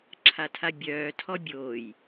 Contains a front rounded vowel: yes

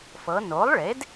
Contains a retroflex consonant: yes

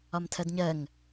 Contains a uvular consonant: no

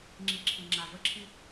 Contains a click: yes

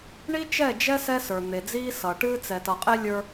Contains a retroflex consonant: yes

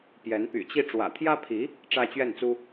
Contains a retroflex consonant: yes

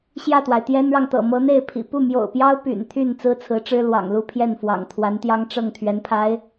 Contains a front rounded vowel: yes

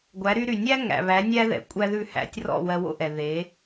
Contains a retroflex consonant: no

